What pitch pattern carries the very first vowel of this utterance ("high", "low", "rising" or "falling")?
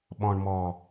low